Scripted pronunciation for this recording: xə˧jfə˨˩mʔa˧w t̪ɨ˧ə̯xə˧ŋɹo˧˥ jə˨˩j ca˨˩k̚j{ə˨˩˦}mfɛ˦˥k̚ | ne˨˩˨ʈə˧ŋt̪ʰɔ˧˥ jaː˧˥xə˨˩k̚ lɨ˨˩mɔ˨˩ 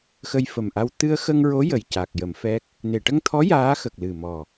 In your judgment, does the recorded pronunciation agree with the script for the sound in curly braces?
yes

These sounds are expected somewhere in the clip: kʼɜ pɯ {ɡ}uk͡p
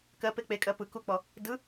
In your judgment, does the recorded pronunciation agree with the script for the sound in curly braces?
no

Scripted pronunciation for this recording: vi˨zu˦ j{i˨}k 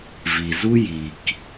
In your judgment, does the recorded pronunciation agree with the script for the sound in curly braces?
yes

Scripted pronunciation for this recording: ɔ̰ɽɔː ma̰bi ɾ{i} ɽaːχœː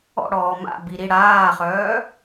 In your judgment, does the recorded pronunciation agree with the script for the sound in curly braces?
yes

